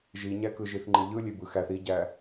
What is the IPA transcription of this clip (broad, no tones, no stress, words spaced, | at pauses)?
ʒiɲækɯ ʒiθŋ͡ǃɨʎɯ lʲebɯxæθ iɟæ